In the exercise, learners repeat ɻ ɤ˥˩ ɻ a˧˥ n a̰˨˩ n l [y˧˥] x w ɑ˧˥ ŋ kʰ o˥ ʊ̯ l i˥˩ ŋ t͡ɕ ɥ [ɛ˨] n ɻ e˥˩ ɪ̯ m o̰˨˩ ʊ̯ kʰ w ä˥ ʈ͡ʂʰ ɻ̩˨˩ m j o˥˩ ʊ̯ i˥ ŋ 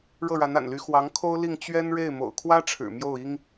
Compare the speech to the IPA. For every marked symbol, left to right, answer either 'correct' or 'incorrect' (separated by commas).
correct, incorrect